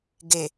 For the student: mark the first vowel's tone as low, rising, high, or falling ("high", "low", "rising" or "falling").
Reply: low